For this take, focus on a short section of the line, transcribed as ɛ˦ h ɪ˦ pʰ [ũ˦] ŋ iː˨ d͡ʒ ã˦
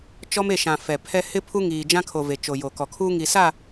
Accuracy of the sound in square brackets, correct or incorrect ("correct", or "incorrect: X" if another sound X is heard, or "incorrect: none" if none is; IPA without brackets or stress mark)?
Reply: incorrect: u˦